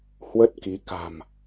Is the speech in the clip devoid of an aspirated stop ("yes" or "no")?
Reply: yes